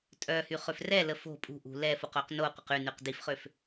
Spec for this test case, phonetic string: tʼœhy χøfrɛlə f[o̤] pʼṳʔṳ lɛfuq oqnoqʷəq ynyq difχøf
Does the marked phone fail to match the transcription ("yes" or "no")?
no